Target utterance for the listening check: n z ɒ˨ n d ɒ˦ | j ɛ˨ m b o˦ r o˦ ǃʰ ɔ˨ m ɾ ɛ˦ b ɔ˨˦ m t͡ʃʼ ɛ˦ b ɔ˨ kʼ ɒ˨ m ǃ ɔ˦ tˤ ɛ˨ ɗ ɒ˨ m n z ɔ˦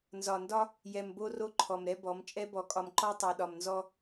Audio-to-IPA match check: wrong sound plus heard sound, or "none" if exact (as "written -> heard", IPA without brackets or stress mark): none